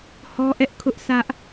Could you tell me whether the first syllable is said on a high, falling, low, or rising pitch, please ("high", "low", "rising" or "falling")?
high